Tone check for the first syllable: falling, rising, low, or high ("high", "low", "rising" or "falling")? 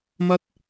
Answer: high